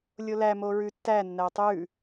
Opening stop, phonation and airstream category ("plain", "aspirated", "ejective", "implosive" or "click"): plain